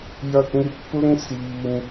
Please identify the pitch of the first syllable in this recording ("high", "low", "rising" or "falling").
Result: high